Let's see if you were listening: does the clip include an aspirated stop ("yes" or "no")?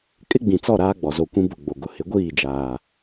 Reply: no